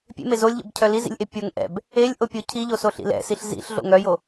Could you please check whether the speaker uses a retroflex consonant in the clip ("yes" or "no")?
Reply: no